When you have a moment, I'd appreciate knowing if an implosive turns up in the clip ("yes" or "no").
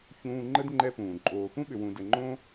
yes